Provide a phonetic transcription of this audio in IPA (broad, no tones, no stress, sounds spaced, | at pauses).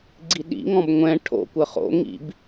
ɡ͡ǀ i ɗ ḭ ŋ ɔ̃ b ŋʷ ɛ̃ ʈʰ o̰ kʷ ə χ o̰ ŋ ḭ b